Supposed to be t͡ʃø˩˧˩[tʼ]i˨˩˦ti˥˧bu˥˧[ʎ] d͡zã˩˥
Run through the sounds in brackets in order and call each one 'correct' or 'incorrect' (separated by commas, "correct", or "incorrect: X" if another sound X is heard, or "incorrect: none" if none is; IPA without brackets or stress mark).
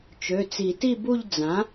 incorrect: t͡s, correct